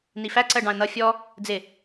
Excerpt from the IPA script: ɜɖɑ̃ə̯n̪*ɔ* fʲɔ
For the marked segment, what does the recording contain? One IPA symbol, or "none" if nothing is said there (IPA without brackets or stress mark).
ʌ